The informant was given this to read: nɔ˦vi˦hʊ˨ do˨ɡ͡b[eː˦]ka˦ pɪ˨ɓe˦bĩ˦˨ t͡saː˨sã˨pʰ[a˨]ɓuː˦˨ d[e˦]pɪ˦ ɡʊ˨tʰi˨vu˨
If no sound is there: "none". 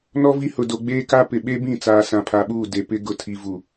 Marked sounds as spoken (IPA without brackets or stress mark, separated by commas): eː˦, a˨, e˨